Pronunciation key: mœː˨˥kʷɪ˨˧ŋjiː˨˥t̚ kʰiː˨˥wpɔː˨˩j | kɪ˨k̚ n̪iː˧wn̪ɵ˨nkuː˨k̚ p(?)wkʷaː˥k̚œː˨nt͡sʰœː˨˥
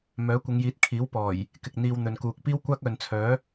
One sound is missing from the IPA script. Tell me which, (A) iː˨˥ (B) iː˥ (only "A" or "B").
B